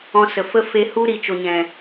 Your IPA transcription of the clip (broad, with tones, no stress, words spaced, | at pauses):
ɔ̃˧sə˨fə˦ fe˧ hu˦ɾi˨t͡ʃo˨ɲɛ̃˨